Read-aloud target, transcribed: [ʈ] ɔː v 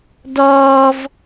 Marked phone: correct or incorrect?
incorrect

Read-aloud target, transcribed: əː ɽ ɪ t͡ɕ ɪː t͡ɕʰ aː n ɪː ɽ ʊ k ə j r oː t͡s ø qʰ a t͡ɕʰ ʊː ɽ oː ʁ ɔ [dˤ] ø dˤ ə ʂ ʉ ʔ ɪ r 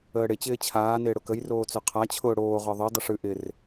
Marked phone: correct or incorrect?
incorrect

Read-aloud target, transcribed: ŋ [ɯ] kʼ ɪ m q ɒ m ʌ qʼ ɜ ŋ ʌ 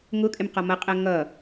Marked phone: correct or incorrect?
incorrect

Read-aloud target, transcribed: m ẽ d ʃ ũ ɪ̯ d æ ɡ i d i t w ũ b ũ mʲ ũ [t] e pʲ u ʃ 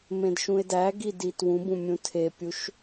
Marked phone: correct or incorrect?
incorrect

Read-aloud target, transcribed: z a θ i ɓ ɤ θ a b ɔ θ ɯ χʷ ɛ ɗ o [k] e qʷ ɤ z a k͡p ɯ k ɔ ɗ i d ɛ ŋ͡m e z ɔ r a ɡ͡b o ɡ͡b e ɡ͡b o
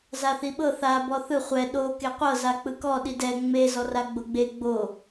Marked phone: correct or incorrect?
correct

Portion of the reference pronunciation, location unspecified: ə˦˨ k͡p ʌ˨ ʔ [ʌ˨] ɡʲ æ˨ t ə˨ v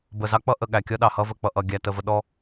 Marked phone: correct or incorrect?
correct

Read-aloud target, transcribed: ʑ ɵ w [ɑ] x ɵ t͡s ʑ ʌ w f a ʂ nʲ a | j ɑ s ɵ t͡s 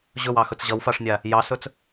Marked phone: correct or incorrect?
correct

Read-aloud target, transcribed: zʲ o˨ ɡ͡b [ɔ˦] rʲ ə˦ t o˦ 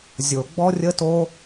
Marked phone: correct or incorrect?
correct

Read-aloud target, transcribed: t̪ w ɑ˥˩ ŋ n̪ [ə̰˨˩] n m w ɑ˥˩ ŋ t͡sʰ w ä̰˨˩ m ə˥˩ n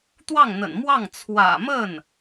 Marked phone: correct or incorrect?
correct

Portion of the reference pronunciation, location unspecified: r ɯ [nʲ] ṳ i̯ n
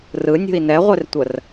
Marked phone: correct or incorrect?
correct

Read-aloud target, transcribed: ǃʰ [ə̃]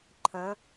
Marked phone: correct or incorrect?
correct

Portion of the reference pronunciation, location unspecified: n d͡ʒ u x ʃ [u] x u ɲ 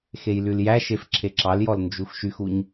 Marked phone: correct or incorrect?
incorrect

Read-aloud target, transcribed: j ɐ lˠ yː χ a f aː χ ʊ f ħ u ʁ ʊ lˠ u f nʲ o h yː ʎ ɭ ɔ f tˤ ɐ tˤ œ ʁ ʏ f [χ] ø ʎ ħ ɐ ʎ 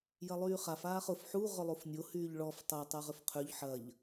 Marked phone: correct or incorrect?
incorrect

